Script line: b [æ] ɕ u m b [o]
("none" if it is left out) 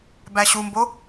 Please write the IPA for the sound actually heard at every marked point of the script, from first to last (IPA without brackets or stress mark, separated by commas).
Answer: æ, o